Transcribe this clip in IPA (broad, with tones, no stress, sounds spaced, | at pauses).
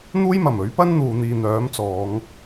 n̪ uː˥ j m ɐ˨˩ m ɵ˨˥ ɥ p ɐ˥ n n̪ uː˨ n̪ iː˨ n̪ œː˨˥ m t͡s ɔː˨˧ ŋ